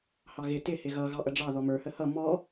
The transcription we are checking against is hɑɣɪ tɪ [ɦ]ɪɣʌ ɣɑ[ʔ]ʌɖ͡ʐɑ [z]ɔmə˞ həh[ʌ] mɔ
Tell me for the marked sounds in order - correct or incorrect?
incorrect, correct, incorrect, correct

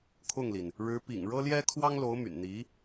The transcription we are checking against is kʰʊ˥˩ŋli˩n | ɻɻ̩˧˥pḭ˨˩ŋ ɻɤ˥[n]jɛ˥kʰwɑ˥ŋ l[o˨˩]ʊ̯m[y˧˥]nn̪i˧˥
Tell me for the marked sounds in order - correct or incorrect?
incorrect, incorrect, incorrect

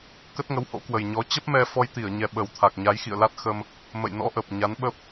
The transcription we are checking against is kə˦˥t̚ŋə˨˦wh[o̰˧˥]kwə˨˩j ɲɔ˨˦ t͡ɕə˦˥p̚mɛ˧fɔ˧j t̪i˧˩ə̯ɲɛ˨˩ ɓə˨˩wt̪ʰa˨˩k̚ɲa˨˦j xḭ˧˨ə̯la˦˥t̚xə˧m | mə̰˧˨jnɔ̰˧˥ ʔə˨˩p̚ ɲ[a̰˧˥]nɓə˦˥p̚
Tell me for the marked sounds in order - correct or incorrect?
correct, incorrect

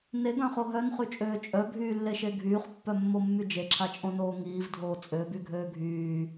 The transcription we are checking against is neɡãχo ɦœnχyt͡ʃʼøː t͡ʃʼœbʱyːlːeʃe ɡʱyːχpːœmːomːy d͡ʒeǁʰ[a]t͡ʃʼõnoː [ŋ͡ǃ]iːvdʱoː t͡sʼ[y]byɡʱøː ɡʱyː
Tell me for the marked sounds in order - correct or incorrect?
correct, incorrect, incorrect

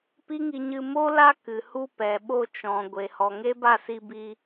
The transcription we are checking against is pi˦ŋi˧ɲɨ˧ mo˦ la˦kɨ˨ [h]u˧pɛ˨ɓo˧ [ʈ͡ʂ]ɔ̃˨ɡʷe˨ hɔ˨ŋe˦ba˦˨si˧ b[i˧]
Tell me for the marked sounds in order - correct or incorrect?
correct, incorrect, correct

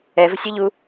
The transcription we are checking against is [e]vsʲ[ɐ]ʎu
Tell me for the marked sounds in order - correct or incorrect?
incorrect, correct

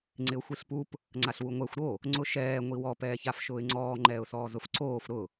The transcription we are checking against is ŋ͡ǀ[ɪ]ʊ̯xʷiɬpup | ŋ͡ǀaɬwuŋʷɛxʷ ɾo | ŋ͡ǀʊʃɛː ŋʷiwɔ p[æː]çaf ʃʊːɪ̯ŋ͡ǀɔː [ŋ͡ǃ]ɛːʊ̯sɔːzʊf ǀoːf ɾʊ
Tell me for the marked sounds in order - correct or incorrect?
correct, incorrect, correct

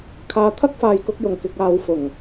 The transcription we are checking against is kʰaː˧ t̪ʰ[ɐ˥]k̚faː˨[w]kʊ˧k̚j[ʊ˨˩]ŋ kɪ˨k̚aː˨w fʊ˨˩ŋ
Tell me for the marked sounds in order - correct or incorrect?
correct, incorrect, correct

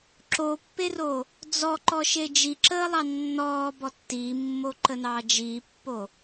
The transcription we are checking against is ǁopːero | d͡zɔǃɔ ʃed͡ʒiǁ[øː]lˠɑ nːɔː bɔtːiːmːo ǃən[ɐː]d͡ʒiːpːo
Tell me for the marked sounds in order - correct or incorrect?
incorrect, incorrect

